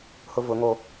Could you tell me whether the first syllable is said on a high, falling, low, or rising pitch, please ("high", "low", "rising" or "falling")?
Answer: high